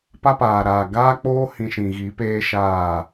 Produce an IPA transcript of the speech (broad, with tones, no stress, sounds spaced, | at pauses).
p a˦ p aː˨ ɾ aː˨ ɡ aː˦ k͡p oː˦ h ĩ˧ ʃ ĩ˨ ɣ i˨˦ p eː˦ ʃ aː˦˨